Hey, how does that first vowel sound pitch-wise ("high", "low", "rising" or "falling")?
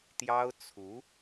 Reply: high